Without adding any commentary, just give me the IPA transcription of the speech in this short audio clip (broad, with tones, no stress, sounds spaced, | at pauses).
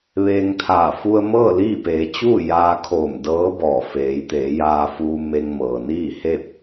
ʋ eː˧ ŋ t̪ʰ aː˧˩ f u˧ ə̯ m ɤː˥˨ l iː˥˨ p eː˩˧ t͡ɕ uː˥˨ j aː˧ kʰ oː˧˩ m d ɤː˧˥ b ɔː˧˩ f eː˩˧ j t̪ eː˩˧ j aː˧ f uː˧ m e˧ ŋ m ɤː˩ n iː˥˨ h e˥˨ p̚